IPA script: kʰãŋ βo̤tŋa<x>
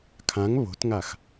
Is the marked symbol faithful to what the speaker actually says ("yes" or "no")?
yes